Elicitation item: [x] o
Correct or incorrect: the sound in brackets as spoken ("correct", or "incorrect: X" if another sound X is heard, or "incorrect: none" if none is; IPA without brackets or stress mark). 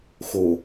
correct